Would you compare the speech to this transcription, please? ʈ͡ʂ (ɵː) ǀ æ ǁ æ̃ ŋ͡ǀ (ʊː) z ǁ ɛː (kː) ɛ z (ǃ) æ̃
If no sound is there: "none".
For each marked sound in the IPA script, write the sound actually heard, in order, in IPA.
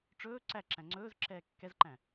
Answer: ɵː, ɵː, kː, ǃ

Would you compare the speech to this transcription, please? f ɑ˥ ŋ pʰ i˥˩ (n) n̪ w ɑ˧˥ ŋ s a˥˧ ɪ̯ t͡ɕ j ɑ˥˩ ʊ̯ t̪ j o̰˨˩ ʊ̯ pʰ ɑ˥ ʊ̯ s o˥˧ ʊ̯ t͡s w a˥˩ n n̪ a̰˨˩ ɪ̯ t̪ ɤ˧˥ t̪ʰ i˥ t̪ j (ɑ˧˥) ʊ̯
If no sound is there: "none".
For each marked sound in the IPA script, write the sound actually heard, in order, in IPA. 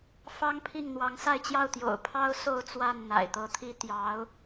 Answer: ŋ, ɑ˧˥

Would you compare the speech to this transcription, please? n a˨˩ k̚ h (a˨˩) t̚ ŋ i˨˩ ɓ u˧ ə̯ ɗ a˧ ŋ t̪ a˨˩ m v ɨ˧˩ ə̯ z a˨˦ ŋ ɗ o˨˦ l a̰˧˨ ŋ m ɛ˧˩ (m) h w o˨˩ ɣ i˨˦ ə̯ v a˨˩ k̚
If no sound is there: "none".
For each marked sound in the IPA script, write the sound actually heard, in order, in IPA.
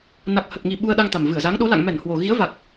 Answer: ə˨˩, n

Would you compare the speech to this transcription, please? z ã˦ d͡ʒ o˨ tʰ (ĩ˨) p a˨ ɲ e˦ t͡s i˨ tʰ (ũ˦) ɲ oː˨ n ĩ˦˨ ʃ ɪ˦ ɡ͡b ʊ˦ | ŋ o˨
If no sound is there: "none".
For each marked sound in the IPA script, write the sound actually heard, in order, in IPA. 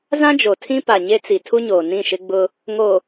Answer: ĩ˦, u˦

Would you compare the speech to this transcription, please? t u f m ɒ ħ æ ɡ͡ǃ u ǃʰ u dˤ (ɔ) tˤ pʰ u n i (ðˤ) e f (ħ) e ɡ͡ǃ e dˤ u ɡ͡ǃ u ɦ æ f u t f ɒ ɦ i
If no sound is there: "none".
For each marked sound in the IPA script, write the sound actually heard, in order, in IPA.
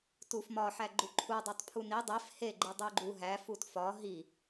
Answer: o, dˤ, h

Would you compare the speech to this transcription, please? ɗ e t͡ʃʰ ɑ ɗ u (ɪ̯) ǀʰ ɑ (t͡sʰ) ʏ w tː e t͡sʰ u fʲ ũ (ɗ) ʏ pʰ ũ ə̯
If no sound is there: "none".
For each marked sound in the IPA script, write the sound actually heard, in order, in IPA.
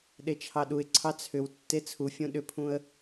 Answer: ɪ̯, t͡sʰ, ɗ

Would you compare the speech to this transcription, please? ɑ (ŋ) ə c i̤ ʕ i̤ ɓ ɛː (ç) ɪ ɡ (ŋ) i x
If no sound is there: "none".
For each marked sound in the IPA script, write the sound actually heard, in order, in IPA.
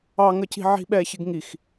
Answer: ŋ, ç, ŋ

